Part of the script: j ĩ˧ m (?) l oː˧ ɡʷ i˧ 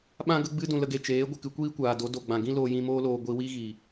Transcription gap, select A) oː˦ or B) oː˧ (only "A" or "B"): A